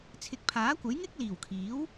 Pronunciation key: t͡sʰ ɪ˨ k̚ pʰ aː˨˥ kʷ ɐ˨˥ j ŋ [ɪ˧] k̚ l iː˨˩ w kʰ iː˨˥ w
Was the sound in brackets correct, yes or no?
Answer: no